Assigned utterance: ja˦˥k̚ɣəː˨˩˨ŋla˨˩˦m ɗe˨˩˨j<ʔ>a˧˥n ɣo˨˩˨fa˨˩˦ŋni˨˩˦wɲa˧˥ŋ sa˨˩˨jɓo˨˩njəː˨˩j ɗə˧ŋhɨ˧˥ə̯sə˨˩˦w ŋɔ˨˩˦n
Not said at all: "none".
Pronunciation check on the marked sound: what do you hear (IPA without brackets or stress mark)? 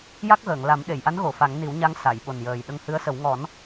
ʔ